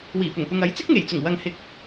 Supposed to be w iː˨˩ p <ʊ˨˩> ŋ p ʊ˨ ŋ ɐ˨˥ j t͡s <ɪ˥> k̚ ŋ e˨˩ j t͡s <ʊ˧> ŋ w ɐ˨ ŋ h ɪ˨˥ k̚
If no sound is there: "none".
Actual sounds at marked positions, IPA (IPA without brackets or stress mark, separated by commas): ʊ˨˩, ɪ˥, ʊ˨˩